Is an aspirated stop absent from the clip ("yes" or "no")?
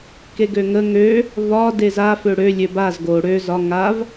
yes